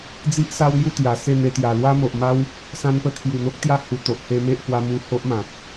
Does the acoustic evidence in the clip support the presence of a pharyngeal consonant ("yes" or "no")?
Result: no